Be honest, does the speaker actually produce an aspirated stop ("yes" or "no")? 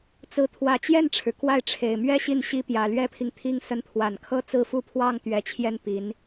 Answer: yes